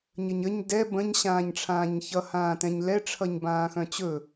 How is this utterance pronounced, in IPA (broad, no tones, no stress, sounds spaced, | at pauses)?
ɲ ə ɲ ə ɲ d ɛ b ə̃ ɲ ɕ ãː ɲ ʈ͡ʂʰ ãː ɲ ç ʌ h ãː t ɛ̃ ɲ l ɛ ʈ͡ʂʰ ʌ ɲ b ãː x œ̃ t͡ɕ ɵ